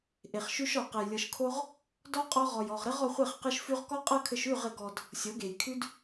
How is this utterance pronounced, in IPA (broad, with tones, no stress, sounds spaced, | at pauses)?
ʔ e˨ χ ʃ ʉ˧ ʃ ɔ˨ q ɘ˨ j lʲ ɤ˨ ʃ kʰ o˧ ʁ | d ɔ˧ qʼ ɔ˧ ʁ ɔ˨ j ɔ˨ ʁ ɾ ɘ˦ ʁ ɔ˧ χʷ e˦˨ χ q ɘ˦ ʃ f ʉ˦ ʁ k ɔ˦ qʼ ɤ˦ kʰ ɘ˧ ʃ ʉ˦˨ ʁ ɘ˨ ɡ ɔ˨ d | sʲ ɤ˨˦ ɡ e˨ j kʰ ʉ˦ d